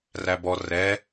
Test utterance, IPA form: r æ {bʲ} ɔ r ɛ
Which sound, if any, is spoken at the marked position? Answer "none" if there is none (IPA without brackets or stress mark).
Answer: b